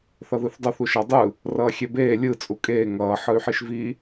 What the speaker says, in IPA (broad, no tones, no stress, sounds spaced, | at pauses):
θ ʌ ð ɯ θ dˤ ʌ θ u ʃ a dˤ ɯ | r ʌː xʲ ɛ b eː lʲ ɯ t͡sʼ u kʼ eː ŋ ʌː ħ ɯ y̯ ħ i ʃ v i